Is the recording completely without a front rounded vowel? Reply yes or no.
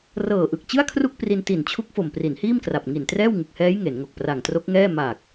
yes